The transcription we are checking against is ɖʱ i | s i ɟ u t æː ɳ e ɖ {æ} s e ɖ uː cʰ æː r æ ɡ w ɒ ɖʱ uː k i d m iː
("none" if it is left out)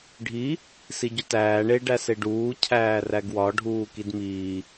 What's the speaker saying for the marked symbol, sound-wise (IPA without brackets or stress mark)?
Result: æ